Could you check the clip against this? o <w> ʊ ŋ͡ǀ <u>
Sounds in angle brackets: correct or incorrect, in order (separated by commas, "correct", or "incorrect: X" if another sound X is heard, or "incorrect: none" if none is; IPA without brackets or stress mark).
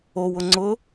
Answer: correct, incorrect: ʊ